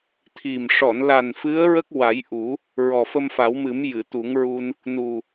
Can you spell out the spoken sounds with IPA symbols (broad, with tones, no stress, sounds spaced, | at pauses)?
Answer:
t̪ʰ i˨˩ m ʂ ɔ˨˩˨ n l a˨˩ n f ɨ˧˥ ə̯ ɹ ə˦˥ k̚ w a˨˩˦ j ʔ u˨˩˦ | ɹ ɔ˨˩ f ə˧ m f a˨˩˦ w m ɨ˨˩˦ m j ɨ˨˩˨ t̪ u˨˩˦ ŋ ɹ u˧ n | n u˨˩